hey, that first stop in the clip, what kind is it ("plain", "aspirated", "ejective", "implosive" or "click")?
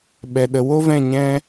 implosive